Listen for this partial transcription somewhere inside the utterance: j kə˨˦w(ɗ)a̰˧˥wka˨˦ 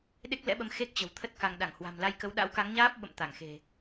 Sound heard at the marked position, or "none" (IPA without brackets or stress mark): ɗ